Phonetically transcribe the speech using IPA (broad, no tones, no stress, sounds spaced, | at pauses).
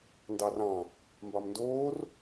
n d ɑ r ɑ̃ | m b ɑ m n d oː r